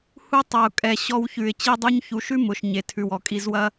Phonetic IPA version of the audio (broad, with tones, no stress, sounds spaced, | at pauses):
h u˧ tˤ ɐ˨ ʊ̯ kʼ ɛ˨ ɕ ɔ˧ w ç ʉ˨ ɪ̯ t͡ɕ i˧ dˤ u˧ ɲ ç u˨˦ ʃ ʉ˦ m ʊ˨ ʃ ɲ e˨ tʰ ʉ˨ w ɔ˨ kʼ i˧ z w ɐ˦